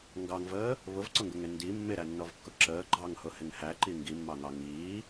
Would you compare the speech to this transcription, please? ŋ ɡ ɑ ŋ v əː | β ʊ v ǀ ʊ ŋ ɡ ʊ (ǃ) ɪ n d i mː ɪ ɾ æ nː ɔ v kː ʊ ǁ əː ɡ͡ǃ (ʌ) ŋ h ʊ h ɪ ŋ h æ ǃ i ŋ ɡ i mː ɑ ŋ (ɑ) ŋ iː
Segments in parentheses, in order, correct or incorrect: incorrect: ŋ, incorrect: ɑ, correct

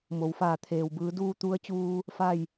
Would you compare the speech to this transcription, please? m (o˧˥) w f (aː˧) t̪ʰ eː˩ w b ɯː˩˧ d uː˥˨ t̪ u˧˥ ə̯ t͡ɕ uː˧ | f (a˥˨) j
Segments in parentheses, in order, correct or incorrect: incorrect: o˩˧, incorrect: aː˧˩, correct

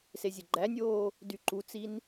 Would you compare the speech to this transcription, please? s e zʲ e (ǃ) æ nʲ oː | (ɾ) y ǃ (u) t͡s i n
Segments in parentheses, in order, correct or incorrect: incorrect: ɡ͡ǃ, incorrect: d, correct

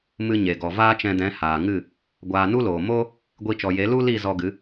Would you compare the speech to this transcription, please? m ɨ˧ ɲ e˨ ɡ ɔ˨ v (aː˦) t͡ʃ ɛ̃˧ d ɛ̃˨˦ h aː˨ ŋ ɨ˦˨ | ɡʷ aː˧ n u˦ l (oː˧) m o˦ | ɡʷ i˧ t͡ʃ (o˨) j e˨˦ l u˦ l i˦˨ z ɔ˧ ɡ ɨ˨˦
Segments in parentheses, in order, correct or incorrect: correct, incorrect: oː˨, incorrect: ɔ˨

